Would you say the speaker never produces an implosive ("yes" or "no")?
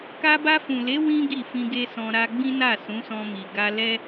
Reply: yes